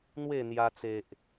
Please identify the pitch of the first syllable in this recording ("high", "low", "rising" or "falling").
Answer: falling